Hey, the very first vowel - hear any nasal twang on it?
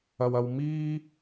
no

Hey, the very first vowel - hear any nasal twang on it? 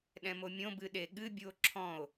yes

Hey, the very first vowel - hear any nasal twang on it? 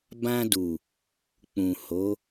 yes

